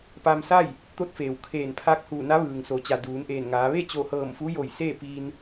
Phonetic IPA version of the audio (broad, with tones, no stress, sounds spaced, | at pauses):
p a˧ m s a˥˨ j | t̪ o˧˥ t̚ f eː˩ w kʰ eː˧˩ n pʰ aː˧ k̚ h uː˧˩ n a˧˥ ʋ ɯː˩ ŋ s o˩˧ t͡ɕ a˩ d uː˩˧ n ʔ eː˧˩ n ŋ aː˩˧ ʋ e˥˨ t͡ɕ o˧˩ h ɤː˧˩ m f u˧˥ j o˧˩ j s eː˥˨ p iː˧ n